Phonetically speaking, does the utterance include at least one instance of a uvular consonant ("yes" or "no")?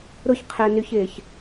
yes